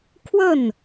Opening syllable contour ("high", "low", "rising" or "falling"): falling